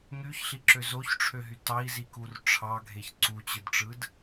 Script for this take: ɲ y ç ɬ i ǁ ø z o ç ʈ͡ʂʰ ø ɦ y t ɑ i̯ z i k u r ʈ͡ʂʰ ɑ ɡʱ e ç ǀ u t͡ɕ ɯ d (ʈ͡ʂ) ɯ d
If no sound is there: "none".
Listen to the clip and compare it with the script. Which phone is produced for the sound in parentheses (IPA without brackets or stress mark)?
ʈ͡ʂ